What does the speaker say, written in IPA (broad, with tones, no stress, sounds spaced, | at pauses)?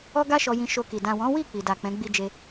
ɔ˦ ɡ a˦ ʃ ɔ˧ j ĩ˧ ʃ o˧ k i˨ d ã˨ w ɔ̃˨˦ w i˦˨ k͡p i˨ d a˨ k͡p ɛ̃˨˦ ɡ͡b i˦ d͡ʒ e˦